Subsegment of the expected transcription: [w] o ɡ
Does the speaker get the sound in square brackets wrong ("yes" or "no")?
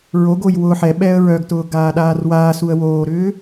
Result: yes